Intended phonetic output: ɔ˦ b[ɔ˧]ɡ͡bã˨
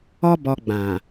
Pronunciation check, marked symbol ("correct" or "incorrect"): correct